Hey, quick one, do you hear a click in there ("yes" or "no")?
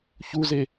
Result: no